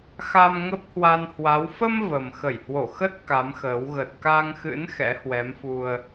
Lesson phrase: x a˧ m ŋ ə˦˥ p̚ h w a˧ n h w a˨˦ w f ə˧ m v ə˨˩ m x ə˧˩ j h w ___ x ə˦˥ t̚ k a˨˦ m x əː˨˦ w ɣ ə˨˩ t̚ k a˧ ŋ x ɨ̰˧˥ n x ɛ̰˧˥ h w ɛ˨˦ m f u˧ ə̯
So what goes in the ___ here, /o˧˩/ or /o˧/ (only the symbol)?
o˧˩